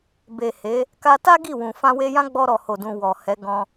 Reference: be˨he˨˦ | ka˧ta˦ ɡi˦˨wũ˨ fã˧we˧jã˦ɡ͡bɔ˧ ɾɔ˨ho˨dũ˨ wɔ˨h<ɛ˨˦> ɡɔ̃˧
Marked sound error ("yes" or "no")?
no